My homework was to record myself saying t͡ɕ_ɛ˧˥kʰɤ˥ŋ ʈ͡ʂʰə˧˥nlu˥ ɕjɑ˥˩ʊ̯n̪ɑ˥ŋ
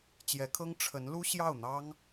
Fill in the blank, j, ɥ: j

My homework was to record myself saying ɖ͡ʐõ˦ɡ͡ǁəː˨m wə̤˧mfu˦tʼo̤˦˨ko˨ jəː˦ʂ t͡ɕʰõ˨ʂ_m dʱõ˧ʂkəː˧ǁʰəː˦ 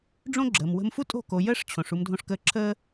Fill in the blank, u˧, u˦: u˧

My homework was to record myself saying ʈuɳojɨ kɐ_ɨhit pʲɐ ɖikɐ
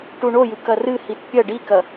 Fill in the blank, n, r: r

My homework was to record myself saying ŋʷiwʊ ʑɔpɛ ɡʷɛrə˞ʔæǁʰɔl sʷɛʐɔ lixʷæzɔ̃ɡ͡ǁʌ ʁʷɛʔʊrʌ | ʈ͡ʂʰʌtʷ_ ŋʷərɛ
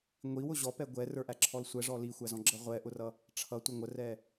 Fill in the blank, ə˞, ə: ə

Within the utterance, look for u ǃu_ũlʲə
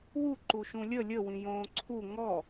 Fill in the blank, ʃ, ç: ʃ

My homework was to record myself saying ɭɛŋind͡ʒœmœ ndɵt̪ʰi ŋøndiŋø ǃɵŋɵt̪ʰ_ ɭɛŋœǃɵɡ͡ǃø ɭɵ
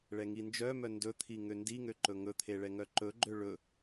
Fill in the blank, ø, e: e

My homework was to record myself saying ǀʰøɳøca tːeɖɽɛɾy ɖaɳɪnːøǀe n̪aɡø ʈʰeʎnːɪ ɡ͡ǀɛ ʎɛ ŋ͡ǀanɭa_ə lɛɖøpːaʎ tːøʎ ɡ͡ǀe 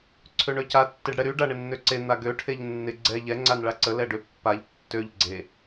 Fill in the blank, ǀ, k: ǀ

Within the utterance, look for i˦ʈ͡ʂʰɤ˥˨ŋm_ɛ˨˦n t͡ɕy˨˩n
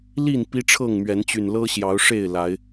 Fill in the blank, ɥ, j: ɥ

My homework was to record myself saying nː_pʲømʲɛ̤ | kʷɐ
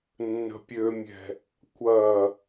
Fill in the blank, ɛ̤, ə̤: ə̤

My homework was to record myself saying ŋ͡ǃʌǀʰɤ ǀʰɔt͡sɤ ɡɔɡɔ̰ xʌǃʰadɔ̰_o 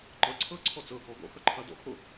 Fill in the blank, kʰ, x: kʰ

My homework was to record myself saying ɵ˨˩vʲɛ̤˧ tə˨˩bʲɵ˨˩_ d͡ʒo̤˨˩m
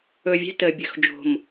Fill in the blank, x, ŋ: x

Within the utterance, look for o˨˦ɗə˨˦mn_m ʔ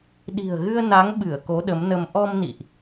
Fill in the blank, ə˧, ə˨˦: ə˧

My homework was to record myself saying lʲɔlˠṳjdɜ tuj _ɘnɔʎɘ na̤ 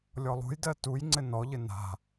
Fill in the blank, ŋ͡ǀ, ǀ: ŋ͡ǀ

